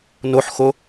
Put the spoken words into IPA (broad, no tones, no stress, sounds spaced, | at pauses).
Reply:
n o ħ x o